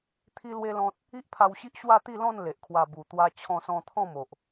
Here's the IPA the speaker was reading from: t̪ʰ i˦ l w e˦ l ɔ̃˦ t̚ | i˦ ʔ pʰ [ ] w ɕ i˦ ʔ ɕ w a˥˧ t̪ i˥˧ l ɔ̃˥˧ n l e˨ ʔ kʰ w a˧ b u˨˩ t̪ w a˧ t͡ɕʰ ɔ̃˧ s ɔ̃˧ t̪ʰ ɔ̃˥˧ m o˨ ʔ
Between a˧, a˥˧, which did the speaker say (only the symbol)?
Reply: a˧